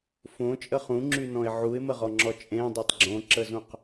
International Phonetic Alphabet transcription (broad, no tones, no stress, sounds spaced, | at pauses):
f õ t͡ʃʼ ə χ ũ ŋ͡ǁ y n ɔ̃ ɪ̯ ʕ u ɪ̯ m ə ʁ ɔ ŋ͡ǁ ɔ t͡ʃʼ ẽ dˤ œ tˤ ɡ͡ǁ õ ǁ ə z ũ q